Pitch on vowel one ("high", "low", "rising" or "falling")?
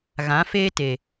rising